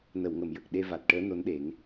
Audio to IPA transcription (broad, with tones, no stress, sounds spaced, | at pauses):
n ə˨˩˨ w ŋ ə˨˩˨ m j ə˨˩ k̚ ɗ e˧ v a˨˩ t̚ ʈ əː˧˥ n o˧˥ n ɗ e˨˩˦ ŋ